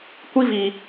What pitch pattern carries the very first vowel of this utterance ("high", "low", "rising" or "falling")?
high